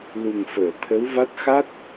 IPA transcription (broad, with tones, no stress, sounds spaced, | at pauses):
l u˨˩ ŋ f əː˨˩˨ t̪ʰ ə˧˥ w v a˦˥ t̚ x a˦˥ t̚